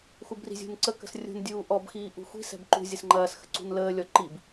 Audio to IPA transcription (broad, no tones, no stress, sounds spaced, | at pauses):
x u b r i̤ zʲ ṳ n ǀ ə k ə̤ s rʲ ṳ n dʲ uː ʔ ɔ b x iː ʔ ṳ xʷ i̤ s ɛ̤ b ǃ ṳ zʲ ə s ŋ͡ǃ ɐː s x ə̤ ǀ ṳ n l əː lʲ ɔ ǃ i b